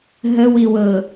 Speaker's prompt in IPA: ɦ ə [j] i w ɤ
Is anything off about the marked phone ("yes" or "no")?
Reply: yes